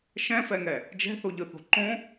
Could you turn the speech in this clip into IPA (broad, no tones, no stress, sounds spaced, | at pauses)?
ʃ ɛ̃ f ɛ ŋ ɛ | d͡ʒ ɛ̤ θ o ʎ ɯ θ o̤ ǃ õ